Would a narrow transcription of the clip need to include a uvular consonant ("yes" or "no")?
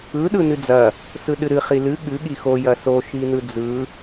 yes